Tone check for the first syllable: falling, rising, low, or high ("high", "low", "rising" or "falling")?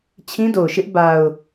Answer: high